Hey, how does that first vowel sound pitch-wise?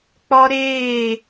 high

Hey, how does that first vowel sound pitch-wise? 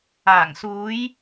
low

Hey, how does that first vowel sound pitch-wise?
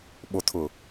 low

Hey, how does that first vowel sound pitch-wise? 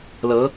rising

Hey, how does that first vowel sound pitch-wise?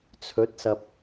rising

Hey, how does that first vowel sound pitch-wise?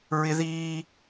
high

